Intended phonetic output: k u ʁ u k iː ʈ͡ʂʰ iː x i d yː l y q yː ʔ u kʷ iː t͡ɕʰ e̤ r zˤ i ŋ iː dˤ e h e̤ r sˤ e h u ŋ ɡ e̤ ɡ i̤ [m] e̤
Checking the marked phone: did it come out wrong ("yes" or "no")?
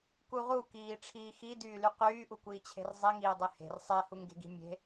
yes